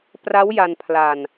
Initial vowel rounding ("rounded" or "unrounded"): unrounded